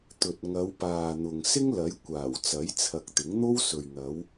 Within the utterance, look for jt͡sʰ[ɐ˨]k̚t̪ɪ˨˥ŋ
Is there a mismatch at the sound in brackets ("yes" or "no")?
no